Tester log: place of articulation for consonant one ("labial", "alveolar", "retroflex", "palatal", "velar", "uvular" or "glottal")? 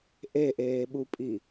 glottal